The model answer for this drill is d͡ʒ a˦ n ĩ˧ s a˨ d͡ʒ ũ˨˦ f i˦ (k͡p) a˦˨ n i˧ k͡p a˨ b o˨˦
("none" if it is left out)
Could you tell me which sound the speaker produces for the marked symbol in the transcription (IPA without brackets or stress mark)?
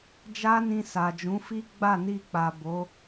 ɡ͡b